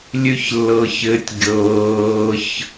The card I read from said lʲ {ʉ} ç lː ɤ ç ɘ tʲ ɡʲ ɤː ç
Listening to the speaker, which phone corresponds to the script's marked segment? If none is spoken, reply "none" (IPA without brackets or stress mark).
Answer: ʉ